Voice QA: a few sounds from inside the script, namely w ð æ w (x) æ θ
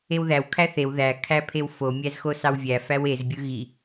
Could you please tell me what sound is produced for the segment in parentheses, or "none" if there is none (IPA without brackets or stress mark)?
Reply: kʰ